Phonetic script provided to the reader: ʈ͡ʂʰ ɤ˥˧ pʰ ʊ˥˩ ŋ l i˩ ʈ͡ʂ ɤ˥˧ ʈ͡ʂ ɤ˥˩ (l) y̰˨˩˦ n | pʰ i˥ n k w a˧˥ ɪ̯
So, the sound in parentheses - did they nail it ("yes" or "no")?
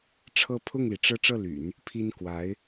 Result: yes